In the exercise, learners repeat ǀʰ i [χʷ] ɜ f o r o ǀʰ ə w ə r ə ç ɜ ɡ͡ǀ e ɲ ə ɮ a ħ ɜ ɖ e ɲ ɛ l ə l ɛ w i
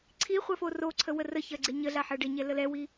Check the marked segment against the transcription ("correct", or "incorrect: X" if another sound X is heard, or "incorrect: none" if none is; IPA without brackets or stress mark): correct